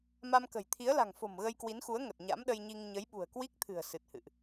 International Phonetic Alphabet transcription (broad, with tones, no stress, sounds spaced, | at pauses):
m a˧ m k ə̤˨˩ j t̪ʰ i˨˦ ə̯ l a̤˨˩ ŋ f o̤˨˩ m ɣ ə˧ j k w i˨˦ n x u˨˦ ə̯ ŋ ə˨˩ t̚ ɲ a̰˧˥ m ɗ ə˧ j ɲ i˧ ŋ ɲ ə˨˦ j ɓ ṳ˨˩ ə̯ k w i˦˥ k̚ t̪ʰ ɨ̤˨˩ ə̯ s ɨ˨˩ t̚ h ɨ̰˧˨ ʔ